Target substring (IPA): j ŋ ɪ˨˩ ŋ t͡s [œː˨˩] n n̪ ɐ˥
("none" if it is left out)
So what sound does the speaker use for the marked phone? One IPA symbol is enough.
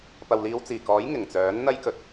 œː˨˥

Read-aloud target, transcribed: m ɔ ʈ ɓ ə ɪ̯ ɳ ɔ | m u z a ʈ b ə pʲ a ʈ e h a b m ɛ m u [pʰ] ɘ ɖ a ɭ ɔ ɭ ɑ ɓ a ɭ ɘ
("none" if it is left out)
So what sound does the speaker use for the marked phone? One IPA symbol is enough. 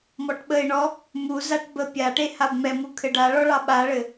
kʰ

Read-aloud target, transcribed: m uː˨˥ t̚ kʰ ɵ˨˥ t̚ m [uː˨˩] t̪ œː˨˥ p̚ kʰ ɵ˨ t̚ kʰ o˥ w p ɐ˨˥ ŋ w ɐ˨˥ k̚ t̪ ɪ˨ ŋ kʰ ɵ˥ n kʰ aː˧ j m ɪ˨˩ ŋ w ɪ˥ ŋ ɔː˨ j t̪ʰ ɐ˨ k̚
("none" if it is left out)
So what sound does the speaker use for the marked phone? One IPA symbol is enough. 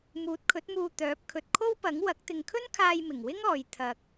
uː˧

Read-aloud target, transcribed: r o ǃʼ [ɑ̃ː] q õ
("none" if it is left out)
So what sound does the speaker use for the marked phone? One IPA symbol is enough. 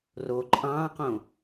ɑ̃ː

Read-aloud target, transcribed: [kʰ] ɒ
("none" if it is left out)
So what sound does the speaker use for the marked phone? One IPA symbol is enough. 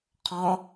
qʰ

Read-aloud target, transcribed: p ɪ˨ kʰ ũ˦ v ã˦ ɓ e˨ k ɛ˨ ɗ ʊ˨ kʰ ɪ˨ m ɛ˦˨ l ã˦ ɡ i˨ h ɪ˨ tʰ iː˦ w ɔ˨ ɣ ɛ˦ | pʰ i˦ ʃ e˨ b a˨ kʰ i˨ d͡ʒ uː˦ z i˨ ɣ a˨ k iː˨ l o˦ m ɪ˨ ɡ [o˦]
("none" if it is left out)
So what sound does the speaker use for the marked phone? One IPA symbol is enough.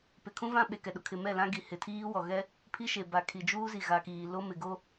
o˦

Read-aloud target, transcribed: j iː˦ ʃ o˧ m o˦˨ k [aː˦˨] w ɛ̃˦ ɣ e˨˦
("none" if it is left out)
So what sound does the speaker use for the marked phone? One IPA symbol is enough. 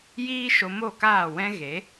aː˦˨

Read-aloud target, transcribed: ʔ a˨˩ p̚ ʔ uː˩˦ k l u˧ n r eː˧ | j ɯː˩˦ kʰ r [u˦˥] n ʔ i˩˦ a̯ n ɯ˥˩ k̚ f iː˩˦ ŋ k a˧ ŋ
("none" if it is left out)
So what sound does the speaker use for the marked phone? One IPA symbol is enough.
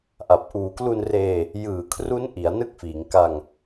u˦˥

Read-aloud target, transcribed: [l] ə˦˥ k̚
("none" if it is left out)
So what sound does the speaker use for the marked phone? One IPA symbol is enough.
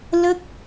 l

